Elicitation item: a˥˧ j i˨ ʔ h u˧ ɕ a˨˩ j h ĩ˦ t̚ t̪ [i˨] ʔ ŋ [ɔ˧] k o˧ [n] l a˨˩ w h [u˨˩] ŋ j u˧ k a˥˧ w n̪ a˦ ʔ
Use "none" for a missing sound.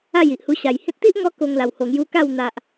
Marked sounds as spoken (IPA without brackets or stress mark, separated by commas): i˦, ɔ˧, ŋ, o˨˩